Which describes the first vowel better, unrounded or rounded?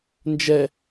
unrounded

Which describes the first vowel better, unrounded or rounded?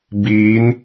unrounded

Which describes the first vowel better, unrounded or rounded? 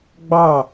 unrounded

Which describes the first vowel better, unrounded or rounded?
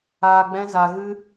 unrounded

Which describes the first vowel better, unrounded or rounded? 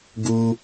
rounded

